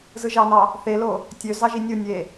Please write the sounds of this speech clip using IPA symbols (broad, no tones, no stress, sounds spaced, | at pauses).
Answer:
z ɯ ʒ ɑ n ɑ | θ e l o | tʲ ø z ɑ ʒ i nʲ ɯ nʲ e